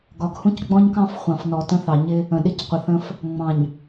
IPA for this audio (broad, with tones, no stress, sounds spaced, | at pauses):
ɡ ɒ˨ ɡ h ũ˦ c ɡ͡b ɔ̃˦ ɲ k ɑ̃˦ f χʷ ɑ̃˨ f n ɔ˨ t ə̃˦ θ ɑ˨ ɲ ɪ˦ | ə̃˨ ɗ ɪ˦ c qʷ ə˨ θ ə̃˦ f | ŋ͡m ɑ̃˨ ɲ